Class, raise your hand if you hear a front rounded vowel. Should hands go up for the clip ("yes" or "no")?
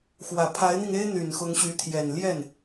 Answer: yes